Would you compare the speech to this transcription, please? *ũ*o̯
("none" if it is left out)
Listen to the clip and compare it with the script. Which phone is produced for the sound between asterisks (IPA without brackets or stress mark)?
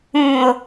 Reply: ũ